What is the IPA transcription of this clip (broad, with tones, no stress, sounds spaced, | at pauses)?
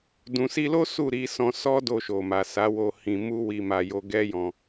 d ũ˨ s i˧ l o˦ s u˦˨ ɾ i˧ s ɔ̃˧ s ɔ˦ d o˧ ʃ o˨ m a˨ s a˨˦ w o˧ h ĩ˧ m u˦ w i˧ m a˧ j o˧ ɡ ɛ˦ j ɔ̃˧